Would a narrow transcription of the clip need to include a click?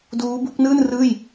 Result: no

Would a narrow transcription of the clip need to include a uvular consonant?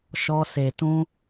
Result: no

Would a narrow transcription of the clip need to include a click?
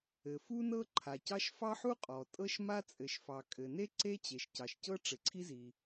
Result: yes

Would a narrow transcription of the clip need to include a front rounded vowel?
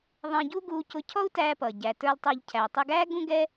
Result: no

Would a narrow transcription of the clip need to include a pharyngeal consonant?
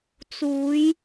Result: no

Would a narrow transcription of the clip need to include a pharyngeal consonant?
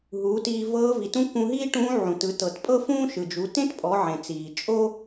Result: yes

